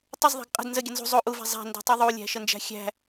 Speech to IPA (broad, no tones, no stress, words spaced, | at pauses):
tˤəzðˤæ̤ɡ qʼə̤d nzəɡʲə nzṳ zˤo ʔuvæ̤ zˤæ̤ndṳtˤu ðˤulʲæ̤ʃənd͡ʒæ̤ xʲæ̤